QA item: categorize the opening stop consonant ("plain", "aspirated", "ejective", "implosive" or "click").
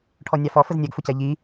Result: aspirated